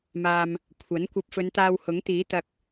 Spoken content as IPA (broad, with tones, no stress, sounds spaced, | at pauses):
m aː˧ m | kʷʰ ɐ˨˥ n kʷ ɐ˧ p̚ f ɵ˨˧ n t̪ aː˧ w h ʊ˨˥ ŋ t̪ iː˨˥ t̪ ɐ˧ k̚